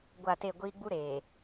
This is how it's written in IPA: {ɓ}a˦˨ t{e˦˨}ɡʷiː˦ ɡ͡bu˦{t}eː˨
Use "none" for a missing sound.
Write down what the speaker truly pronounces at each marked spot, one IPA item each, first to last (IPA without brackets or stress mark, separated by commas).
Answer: ɡʷ, e˦˨, ɾ